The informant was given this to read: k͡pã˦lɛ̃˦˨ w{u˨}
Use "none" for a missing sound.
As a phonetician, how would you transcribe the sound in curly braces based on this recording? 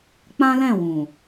ũ˨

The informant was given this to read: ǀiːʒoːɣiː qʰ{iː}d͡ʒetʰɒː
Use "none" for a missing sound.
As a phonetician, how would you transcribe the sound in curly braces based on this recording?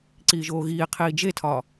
iː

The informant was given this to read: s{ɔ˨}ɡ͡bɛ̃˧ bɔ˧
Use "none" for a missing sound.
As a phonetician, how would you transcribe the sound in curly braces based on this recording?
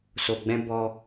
o˨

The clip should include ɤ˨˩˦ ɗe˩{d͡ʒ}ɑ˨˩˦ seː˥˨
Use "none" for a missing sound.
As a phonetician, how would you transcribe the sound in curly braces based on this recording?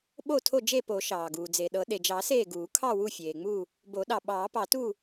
d͡ʒ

